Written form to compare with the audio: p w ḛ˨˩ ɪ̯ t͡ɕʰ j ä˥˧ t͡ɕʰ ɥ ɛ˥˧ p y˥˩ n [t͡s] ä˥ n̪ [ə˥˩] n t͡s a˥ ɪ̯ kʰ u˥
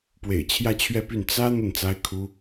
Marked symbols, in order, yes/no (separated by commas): yes, yes